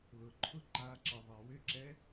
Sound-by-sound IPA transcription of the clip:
l ʊ ǃʰ ʊ ǃ a ǁ ə ðˤ ɛ w ʏ ǁ ɛ

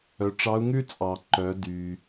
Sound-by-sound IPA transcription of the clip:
œ˩˧ ʈ͡ʂ ɑ˧˥ u̯ ŋ ʉ˥ t͡sʼ ɑ˩ ǃ œ˩˧ d y˩

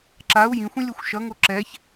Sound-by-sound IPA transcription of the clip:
ǁ a u̯ j ĩ xʷ ĩ lʲ o xʷ ʃ ʌ ŋ o ǁ ɛ ç

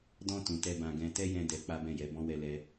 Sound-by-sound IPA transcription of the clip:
d ɔ̃˧ t ũ˨ t ɛ˧ b ã˧ ɡ ɛ̃˦ t ɛ˦ j ɛ̃˧ d ɛ˧ k͡p a˦ b ɛ̃˦˨ j ɛ˨˦ b ɔ̃˦ w ɛ˧ l ɛ˦

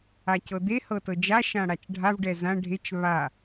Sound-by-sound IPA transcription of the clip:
a c ɤ d̪ e h ɤ t ɤ d͡ʒ a ʃ ã ɽ a t͡ʃ ɖʱ a v ɖ ɛ z ã ɖʱ e t͡ʃ β a

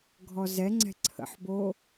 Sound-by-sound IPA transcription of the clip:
ɡʱ ɔ z ɛ ŋ͡ǀ ɛ̤ ǀʰ ə̰ ħ b o

